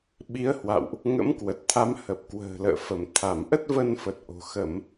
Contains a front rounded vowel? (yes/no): no